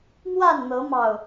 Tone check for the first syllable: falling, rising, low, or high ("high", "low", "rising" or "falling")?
falling